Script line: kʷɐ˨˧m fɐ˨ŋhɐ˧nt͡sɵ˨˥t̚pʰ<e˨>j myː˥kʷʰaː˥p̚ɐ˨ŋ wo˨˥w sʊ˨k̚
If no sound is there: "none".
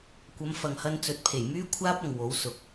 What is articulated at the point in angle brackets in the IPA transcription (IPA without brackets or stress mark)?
e˨˩